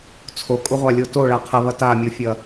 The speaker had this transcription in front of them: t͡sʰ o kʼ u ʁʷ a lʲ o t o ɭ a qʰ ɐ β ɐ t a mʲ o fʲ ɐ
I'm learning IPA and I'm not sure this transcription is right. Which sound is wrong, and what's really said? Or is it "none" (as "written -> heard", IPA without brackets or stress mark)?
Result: none